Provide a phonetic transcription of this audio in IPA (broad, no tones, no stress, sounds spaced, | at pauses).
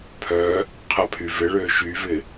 pʰ œ | qʰ ɐ pʰ y v ɪ ɭ øː ʃ y v ɪ